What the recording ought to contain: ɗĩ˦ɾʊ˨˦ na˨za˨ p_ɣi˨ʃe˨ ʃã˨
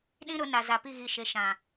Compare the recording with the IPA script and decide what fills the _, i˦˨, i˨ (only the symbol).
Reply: i˦˨